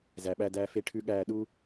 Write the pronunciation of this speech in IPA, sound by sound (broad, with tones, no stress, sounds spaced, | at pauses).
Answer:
z æ˦ ɓ æ˥ d æː˥ f e˥ ʈʰ ʉ˥ ɠ æː˥ ɗ u˥